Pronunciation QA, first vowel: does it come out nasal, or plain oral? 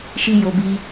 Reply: oral